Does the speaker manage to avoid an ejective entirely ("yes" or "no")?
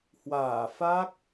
yes